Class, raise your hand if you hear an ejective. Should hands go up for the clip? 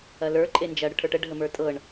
yes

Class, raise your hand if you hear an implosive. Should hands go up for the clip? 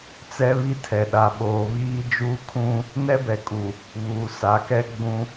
yes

